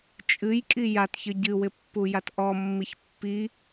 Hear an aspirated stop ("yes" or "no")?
no